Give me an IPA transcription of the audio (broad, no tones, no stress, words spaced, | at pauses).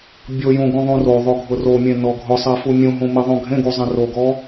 bʲojũɡũðˤũ roðˤoɡʱʊ romʲẽnɔ ɡʱʊsˤɛfu mʲũɦũmiðˤũ ɡʱẽɡuzˤẽ roɡɔ